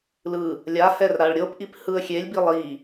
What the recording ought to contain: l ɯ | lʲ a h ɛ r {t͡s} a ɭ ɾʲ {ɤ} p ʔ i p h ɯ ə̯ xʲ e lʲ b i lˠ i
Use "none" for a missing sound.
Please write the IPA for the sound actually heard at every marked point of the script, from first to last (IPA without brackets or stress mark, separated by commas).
ɾ, ɤ